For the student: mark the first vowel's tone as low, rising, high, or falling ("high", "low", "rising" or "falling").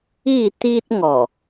falling